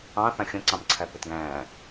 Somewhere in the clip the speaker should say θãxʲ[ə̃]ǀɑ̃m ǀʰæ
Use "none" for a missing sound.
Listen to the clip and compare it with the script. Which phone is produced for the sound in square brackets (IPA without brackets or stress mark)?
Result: ə̃